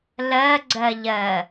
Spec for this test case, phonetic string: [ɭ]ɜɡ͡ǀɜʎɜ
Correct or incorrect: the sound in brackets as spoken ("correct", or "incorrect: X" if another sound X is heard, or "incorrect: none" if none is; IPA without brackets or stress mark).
incorrect: l